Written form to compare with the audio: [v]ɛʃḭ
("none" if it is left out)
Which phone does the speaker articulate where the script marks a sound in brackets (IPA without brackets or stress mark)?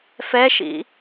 f